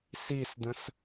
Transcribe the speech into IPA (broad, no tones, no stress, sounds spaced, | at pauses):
s i s d ə̃ s